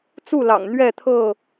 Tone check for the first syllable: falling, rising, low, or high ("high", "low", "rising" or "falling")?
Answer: falling